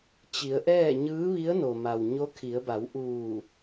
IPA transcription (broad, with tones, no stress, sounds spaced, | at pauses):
t͡ɕ i˩˧ ə̯ ʔ ɛː˥˨ ɲ ɯː˧˥ ʋ i˧˥ ə̯ n o˩ m a˩ w ɲ o˧˥ kʰ i˩˧ ə̯ b a˩˧ w ʔ uː˧˩